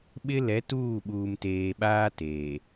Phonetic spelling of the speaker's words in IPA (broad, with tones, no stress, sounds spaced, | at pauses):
ɓ ɪ˦ l ɛ˨˦ t uː˦˨ ɓ uː˨ m t eː˨ ɓ aː˦ t eː˨